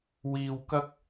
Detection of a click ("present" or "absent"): absent